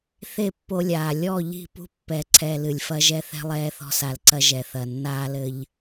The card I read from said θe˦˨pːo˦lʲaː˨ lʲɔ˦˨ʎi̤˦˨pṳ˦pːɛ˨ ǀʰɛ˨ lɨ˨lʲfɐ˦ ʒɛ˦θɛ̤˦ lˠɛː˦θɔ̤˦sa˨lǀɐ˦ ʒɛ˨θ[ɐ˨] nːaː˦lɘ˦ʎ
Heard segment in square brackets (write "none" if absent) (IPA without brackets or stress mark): ɐ˨